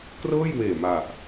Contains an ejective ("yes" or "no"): no